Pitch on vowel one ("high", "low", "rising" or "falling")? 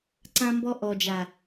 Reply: high